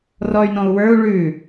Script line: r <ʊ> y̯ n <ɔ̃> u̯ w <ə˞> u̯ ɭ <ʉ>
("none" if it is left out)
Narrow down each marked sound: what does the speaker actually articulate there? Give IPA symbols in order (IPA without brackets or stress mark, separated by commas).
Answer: ɔ, ɔ̃, ə˞, ʉ